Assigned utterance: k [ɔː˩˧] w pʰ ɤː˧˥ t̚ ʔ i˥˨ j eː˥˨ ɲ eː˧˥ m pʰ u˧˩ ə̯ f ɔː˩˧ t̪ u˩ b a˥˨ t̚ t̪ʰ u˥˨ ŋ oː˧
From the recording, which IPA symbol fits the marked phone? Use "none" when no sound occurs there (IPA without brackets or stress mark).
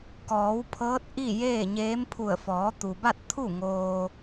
ɔː˩˧